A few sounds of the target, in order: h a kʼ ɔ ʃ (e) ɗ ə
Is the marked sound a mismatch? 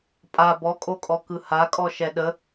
yes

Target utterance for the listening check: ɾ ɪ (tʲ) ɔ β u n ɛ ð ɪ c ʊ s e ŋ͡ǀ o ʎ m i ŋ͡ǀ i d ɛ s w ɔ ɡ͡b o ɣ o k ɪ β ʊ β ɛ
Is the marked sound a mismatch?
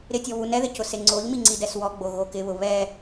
no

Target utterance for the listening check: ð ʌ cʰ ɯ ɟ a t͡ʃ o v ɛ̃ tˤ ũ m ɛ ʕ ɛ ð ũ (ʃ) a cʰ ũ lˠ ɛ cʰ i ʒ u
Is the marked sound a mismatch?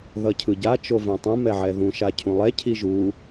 no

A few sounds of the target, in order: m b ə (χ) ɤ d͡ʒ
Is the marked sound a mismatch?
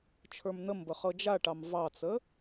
no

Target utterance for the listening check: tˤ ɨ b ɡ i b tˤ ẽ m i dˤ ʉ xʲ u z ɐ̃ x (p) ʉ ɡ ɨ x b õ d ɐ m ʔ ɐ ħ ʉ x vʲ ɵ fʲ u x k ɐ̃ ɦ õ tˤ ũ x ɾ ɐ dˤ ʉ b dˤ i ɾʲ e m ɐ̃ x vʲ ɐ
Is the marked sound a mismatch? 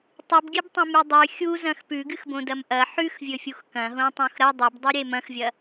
no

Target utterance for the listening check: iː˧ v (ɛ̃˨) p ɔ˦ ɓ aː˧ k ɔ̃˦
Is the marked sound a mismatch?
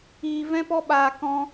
yes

